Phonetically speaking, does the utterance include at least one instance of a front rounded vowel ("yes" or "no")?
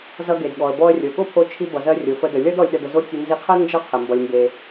no